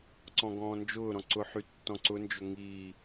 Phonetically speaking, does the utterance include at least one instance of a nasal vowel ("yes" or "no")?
yes